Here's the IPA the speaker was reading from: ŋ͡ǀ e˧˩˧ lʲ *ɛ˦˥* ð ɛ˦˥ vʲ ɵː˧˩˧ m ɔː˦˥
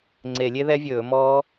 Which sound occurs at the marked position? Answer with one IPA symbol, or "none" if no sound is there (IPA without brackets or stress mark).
e˦˥